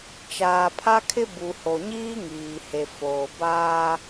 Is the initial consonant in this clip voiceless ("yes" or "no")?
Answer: yes